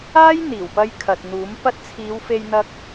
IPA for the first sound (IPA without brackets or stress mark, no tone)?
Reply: aː